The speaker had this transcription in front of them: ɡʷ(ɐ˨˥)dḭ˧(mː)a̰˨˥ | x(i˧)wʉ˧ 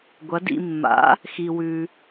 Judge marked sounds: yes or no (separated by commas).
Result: yes, yes, yes